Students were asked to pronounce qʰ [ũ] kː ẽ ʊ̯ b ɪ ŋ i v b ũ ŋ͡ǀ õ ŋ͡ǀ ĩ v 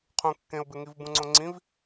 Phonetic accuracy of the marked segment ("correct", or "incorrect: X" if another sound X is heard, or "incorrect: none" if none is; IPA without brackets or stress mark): correct